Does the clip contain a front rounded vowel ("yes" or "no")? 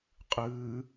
no